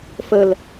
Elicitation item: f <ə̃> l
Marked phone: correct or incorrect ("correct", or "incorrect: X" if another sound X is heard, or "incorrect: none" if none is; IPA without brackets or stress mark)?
incorrect: ə